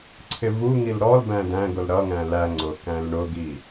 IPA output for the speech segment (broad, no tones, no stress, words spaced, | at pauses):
ǀʰɪvuŋil ɾɔlbæ̃ dæ̃ɡʊl ɾʌŋæ̃ læ ŋ͡ǀʊ kæ̃lɳʊɡi